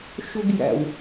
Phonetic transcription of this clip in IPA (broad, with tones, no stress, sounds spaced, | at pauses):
ʃ ɵ˥ ɡ j æ̰˧ w